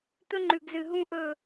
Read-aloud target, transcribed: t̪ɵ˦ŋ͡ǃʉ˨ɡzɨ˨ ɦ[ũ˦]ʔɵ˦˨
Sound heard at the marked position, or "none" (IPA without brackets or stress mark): ũ˦